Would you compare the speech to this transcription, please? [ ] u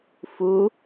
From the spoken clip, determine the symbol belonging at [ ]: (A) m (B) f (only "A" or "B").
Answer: B